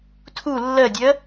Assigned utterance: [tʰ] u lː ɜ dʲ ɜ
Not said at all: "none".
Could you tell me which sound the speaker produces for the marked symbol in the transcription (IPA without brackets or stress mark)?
tʰ